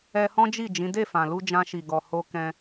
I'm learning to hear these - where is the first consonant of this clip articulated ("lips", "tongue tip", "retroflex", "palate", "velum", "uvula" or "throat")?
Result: throat